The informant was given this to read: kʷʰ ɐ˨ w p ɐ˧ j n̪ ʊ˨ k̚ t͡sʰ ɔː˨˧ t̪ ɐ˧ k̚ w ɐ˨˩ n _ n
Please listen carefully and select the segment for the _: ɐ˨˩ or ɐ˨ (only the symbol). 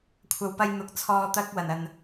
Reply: ɐ˨